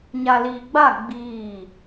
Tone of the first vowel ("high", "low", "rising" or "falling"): low